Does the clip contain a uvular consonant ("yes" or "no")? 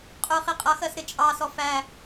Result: yes